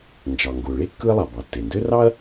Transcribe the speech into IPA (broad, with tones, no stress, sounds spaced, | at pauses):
n d͡ʒ ɑ˩ ŋ ɡ o˩ ɭ e˥ kː ɯ˥ ɐ̯ lˠ ɑ˩ b ɑ˩ tː e˩ n d ø˥ r ɑ˥ ɐ̯